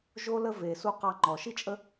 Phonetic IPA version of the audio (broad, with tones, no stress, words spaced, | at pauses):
ʒo˦lə˦ ve˧ su˦ qɑ˧ŋ͡ǃɔ˨ʃi˦t͡ʃʼə˦